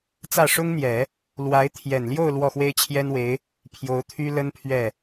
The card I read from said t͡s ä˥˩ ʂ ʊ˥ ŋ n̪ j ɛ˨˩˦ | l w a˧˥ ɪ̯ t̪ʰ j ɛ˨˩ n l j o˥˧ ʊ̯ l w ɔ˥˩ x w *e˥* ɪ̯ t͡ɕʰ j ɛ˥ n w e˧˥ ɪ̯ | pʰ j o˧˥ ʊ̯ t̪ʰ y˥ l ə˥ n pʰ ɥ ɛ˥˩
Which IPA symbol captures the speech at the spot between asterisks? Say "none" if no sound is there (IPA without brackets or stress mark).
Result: e˥